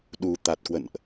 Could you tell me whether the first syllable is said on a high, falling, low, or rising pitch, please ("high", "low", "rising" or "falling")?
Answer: low